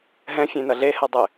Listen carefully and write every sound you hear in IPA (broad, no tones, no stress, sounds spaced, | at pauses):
ɦ ɛ̃ fʲ ẽ n ɐ ɮ e h ɛ dˤ ɪ